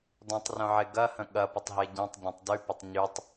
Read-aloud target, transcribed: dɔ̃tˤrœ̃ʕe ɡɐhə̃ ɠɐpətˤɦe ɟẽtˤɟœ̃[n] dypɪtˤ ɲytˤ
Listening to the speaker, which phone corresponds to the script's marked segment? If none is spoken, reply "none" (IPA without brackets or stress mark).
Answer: tˤ